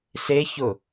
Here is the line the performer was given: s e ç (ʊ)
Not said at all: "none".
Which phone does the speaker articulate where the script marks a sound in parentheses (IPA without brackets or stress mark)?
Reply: ʊ